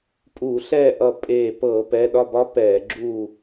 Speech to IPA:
pʼ uː˧˩˧ ɬ ɛː˥˨ ʔ ʌ˧˩ pʼ eː˧˩ p ɤː˧˩˧ p ɛ˩˧˩ ɗ ɒ˥˨ b ɒ˦˥ p ɛː˧˩˧ ɡ͡ǁ uː˥˨

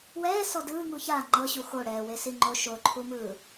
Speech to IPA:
w ɛː s ɔ d ɯː ŋ u ç a ŋ͡ǃ ɤ ɕ u x o ɽ ɛː w e s i ŋ͡ǃ o ʃ o ǃʰ u m ɯː

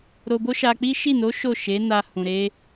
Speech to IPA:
ɾ o˧ b o˦ ʃ a˧ k͡p i˦ ʃ i˦˨ n o˨˦ ʃ o˦˨ ʃ e˨˦ n a˧ h ũ˨ ɾ e˧

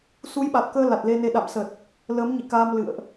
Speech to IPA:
s u˨˦ j ɓ a˨˩ t̚ k əː˧ l a˨˩ t̚ l e˧ n e˧ ɗ a̰˧˨ m s ə˨˩ t̚ | l əː˨˦ m ɲ ḭ˧˨ k aː˧ m l ɨ̰˧˨ ə̯ ʔ

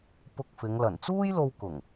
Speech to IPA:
p ʊ˧ k̚ f ɪ˨˧ ŋ l ɐ˨˩ n t͡s uː˥ j l o˧ w k ʊ˨˩ ŋ

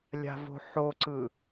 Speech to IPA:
lʲ a̤ v o̤ ħ o ǀ ɯ

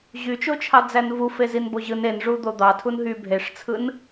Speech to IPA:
ʑ y t͡ʃ o t͡ʃʰ ɑ d͡z æ n v u f e z i n b o ʑ ɯ n e n ʐ u d̪ o d̪ ɑ tʰ u n ɦ y bʱ e ʂ t͡sʰ ɯ n

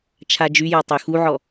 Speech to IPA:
t͡ʃʰ a d͡ʒ y j ɔ tˤ ø x u ʕ ɔ

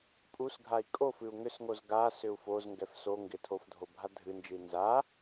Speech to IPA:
pʼ u s ɡʱ a i̯ kʼ o f ɨ u̯ ŋ ʏ s ŋ o z ɡ a s ʏ u̯ f o z ŋ ɡ ɛ f s o ŋ ɡ ɪ tʰ o f dʱ o bʱ a dʱ ɨ n d͡ʒ ɨ i̯ n z a

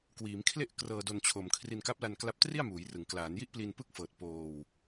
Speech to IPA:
k w iː˩˦ m kʰ l e˥˩ ʔ k r ɤː˧ d o˧ n t͡ɕʰ o˨˩ m kʰ r i˧ n k a˦˥ p̚ l a˧ n k l a˦˥ p̚ t r i˥˩ a̯ m uː˩˦ j r ɯ˩˦ ŋ k l aː˩˦ n j i˥˩ ʔ p l i˧ n p ɯ˥˩ k̚ f ɤː˨˩ t̚ p oː˧ w

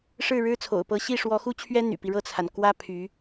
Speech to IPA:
ʂ ɻ̩˥˩ ɻ ɻ̩˥ t͡sʰ o̰˨˩ ʊ̯ p ɤ˧˥ ɕ i˥˩ ʂ w ɔ˧˥ x u˥ t͡ɕʰ ɥ ɛ˥ n̪ y̰˨˩ p i˦ ɻ ɤ˥˩ t͡sʰ a˩ n k w ä˥ pʰ y˧˥

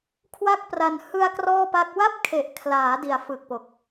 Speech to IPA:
kʰ w a˥˩ k̚ p r a˧ n h ɯ˧ a̯ k r ɔː˥˩ p a˦˥ k̚ w a˥˩ p̚ kʰ e˨˩ ʔ kʰ l aː˩˦ d i˩˦ a̯ f ɯ˨˩ k̚ p o˨˩ k̚

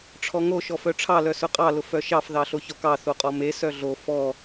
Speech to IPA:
ʈ͡ʂʰ ɔ ŋ o ʃ ɔ f œ ʈ͡ʂʰ ɑ l œ s ʊ qʼ ɑ l ʊ f œ ʃ ɑ f ð ɑ ɬ o ç ɔ k ɑ θ o qʼ ɔ m e s œ ɮ o f ɔ

